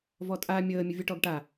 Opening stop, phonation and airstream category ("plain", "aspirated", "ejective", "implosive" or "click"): ejective